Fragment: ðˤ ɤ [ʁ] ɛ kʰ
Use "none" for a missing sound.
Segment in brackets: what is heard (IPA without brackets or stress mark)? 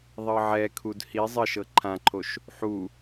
ʕ